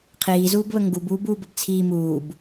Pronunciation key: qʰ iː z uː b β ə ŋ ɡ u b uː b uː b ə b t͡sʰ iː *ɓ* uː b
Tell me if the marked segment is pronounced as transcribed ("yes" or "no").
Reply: no